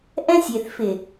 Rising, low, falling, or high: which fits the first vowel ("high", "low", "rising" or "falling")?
high